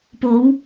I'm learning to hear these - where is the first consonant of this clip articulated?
lips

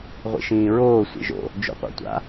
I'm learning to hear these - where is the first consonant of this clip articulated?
uvula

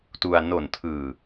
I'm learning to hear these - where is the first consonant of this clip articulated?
tongue tip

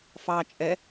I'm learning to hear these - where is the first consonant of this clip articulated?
lips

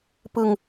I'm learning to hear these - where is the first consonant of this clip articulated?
lips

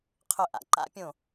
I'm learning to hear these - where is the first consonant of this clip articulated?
uvula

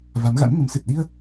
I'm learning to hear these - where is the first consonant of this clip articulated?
lips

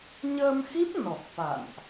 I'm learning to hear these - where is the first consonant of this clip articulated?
palate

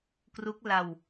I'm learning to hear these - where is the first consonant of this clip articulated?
velum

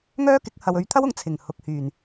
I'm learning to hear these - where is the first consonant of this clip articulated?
velum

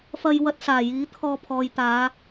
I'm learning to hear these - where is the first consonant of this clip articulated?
lips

